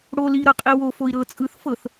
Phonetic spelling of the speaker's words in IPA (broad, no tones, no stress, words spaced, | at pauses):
ɽo liɾɤqʼi wofoi̯ ɾɤ t͡sʼɯθ fɤθ